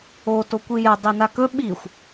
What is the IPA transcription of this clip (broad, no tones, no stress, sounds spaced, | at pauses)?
o t o kʷ i j ɛ dˤ i n a k ɵ ɓ i xʷ